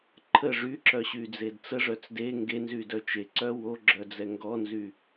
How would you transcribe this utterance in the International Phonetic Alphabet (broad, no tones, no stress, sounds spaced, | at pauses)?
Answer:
ǃʰ ə ʐ y ǁ œ ɕ y d͡z e d t͡s ə ʐ œ t͡s d e ŋ ɡ e n z y d œ t͡ʃ e ǀ œ w o ɡ͡ǁ œ d͡z ɛ ŋ ɡ ɔ n z y